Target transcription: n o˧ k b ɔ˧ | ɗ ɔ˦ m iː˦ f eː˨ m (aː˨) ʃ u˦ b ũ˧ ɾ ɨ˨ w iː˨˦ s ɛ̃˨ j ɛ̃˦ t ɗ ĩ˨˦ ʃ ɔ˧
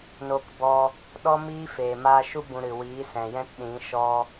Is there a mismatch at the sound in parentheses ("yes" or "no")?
yes